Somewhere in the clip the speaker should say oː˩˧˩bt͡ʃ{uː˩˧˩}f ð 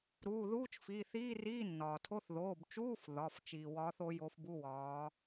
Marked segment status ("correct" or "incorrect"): incorrect